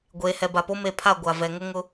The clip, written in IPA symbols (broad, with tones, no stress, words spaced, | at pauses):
ɡʷeː˨hɛ˨ba˨po˦ me˨pʰa˦˨ ɡʷa˨ vɛ˨ŋʊ˦ ŋʊ˦